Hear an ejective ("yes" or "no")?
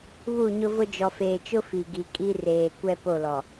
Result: yes